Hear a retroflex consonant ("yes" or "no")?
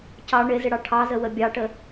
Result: yes